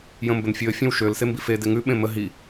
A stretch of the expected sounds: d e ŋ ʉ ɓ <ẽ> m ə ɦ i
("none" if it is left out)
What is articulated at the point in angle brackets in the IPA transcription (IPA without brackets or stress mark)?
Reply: ẽ